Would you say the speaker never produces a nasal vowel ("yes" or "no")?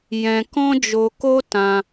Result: no